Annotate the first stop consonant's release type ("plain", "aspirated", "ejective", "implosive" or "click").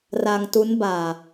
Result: plain